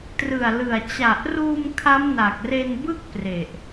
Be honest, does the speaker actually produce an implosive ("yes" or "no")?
no